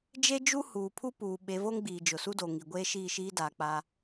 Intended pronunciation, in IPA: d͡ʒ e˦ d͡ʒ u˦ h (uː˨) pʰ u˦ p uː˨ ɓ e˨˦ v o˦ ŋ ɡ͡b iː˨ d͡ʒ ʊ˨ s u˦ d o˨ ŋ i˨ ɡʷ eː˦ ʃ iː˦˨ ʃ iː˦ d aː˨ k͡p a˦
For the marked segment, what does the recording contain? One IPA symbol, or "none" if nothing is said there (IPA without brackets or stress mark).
uː˨